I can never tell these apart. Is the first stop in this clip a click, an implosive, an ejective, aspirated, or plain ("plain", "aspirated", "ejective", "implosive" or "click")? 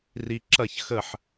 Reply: click